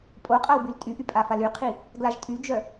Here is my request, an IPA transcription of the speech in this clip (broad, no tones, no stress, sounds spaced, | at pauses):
pʼ o qʼ a w b y l tʼ y ʔ y pʼ a f a l y qʰ i | ɡ l a ʒ tʼ y d͡ʒ œ